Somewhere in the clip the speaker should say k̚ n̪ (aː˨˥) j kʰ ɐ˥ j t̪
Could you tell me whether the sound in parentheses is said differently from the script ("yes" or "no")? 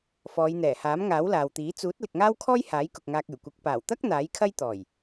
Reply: no